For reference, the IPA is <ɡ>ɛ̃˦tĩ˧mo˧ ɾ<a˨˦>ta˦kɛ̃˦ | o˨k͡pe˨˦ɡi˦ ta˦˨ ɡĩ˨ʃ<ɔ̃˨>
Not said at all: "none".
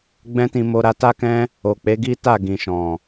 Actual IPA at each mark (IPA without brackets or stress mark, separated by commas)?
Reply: ɡ͡b, a˧, ɔ̃˨